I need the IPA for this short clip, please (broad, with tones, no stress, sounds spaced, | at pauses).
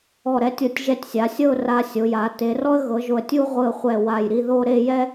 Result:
ɔ˧˩ ɾ ɛ˧ tʲ ɤ˧˩ tʲ ʒ ɛ˧ tʲ sʲ a˩˧ sʲ ɤ˥˧ ʊ̯ r a˧ sʲ o˩˧ j a˩˧ t e˩˧ r ɔ˥ ə̯ ɣ ɤ˩˧ ʒ o˧˩ ə̯ tʲ u˥ ʁʷ ɯ˧˩ ə̯ χʷ ɛ˧˩ w a˧˩ j ɾ i˥˧ ð o˥˧ ɾ e˥˧ j ɛ˥